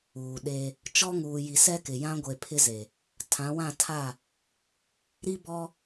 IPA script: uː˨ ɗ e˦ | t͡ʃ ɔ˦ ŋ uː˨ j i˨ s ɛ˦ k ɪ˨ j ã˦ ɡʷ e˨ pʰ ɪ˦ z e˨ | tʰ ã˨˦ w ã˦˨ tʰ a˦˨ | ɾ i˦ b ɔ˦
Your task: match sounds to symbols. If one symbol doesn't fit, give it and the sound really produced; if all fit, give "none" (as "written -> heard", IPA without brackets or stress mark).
none